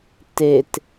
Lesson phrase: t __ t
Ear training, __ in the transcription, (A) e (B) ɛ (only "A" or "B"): A